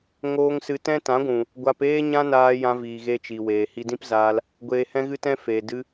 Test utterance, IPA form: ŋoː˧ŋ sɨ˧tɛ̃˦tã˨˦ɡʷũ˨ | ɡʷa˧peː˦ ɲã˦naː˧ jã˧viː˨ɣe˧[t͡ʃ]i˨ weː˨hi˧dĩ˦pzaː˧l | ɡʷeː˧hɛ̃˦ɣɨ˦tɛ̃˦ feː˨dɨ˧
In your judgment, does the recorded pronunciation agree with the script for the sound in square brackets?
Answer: yes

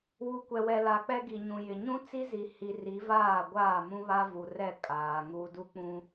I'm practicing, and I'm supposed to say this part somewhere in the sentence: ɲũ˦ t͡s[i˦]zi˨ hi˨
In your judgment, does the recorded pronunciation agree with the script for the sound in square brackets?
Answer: yes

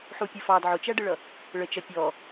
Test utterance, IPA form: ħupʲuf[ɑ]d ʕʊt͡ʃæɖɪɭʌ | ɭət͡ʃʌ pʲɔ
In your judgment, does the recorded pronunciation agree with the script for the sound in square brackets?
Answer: yes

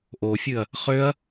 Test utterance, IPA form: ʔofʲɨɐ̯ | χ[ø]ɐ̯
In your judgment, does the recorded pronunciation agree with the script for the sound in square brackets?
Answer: yes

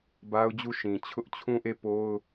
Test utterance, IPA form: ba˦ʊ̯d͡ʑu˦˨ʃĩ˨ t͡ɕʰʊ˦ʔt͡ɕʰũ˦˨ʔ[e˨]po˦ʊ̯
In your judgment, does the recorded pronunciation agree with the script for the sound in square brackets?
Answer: no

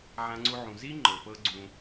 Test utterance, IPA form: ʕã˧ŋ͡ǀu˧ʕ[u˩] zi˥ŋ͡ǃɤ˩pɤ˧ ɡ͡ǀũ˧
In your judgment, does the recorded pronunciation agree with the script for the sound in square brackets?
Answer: no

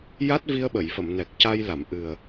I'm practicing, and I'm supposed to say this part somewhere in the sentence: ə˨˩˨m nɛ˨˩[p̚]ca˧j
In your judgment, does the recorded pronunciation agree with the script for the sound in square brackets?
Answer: no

